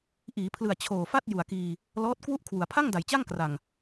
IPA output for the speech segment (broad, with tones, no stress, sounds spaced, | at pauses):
ʔ iː˩˦ pʰ l ɯ˨˩ a̯ t͡ɕʰ oː˨˩ f a˥˩ t̚ j u˨˩ a̯ k iː˧ | l ɔː˦˥ t̚ k w u˥˩ ʔ kʰ w u˩˦ a̯ pʰ a˥˩ ŋ d a˩˦ j t͡ɕ a˥˩ ŋ k r a˨˩ ŋ